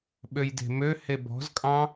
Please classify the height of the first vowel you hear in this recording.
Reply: mid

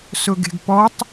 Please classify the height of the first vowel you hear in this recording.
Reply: high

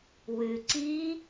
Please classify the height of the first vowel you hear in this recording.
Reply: high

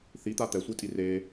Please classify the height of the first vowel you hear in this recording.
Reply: high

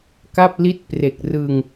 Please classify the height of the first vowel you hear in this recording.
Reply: low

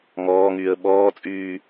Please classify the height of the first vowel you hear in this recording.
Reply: mid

